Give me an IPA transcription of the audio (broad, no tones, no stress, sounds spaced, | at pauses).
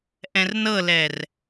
ʔ ɛ̃ r n ɤ l ɛ r